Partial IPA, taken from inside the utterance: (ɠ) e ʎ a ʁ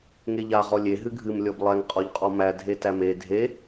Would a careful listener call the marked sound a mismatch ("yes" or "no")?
yes